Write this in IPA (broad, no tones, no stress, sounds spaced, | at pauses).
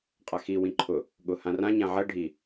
qʼ a x i w ĩ ǃʰ ʊ | ɠ ʊ h ã r ã ɲ ã ʕ ɐ ɖʱ i